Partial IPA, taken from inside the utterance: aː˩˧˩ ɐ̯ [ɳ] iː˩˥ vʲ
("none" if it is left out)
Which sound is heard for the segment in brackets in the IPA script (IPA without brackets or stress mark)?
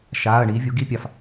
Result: ɳ